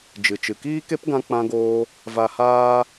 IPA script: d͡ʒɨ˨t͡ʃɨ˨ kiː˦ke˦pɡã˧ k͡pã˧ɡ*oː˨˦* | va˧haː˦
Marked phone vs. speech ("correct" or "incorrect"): incorrect